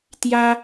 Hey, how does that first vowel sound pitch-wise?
high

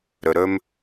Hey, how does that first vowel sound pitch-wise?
high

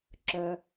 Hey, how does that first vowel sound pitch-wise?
low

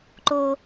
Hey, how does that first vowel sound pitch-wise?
high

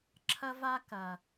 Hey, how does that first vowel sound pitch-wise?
high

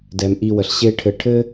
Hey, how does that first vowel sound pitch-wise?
low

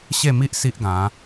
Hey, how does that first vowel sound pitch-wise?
falling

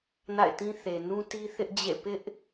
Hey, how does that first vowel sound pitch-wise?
falling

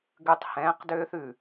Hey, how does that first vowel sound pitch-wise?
low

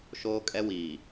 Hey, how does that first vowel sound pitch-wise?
high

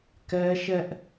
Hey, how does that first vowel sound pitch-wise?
high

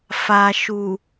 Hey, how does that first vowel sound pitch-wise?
low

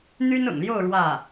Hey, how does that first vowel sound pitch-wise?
high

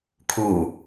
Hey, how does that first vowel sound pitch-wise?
low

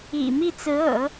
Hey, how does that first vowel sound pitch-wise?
low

